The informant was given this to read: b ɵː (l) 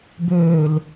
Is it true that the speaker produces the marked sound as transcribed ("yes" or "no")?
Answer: yes